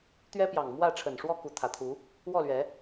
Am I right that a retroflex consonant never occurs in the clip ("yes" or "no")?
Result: no